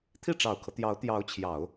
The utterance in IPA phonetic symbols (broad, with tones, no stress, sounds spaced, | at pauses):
t̪ʰ i˥˩ ʈ͡ʂ ɑ˨˩ ʊ̯ kʰ ɤ˦ t̪ j ɑ˧˥ ʊ̯ t̪ j ɑ˧˥ ʊ̯ t͡ɕʰ j ɑ˨˩˦ ʊ̯